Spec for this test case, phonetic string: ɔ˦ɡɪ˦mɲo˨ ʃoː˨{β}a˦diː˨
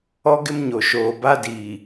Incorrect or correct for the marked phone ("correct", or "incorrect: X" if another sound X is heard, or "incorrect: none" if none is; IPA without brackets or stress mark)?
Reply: incorrect: b